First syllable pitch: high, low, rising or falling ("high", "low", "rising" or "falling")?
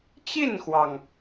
falling